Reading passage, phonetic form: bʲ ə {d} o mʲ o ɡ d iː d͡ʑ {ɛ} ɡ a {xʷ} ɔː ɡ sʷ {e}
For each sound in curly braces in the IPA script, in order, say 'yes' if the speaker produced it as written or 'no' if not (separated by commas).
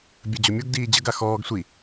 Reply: no, no, no, no